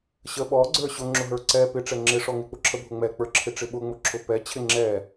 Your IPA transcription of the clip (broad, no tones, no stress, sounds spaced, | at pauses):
ɕ ə ɓ ɔ ɡ͡ǀ ə˞ ɕ ʊ ŋ͡ǁ ʊ ɦ ə˞ ǀ ɛ p ɪ ʈ͡ʂ ɛ ŋ͡ǁ ɪ ʂ ɔ ŋ ɪ k͡p ʊ ǁʰ ə bʱ ʊ ŋ͡m ɛ k͡p ə˞ ǁʰ ɪ ʈ͡ʂ ɪ ɓ ʊ ŋ͡m ʊ ǁʰ ʊ p ɛ t͡ɕʰ ɪ ŋ͡ǁ ɛ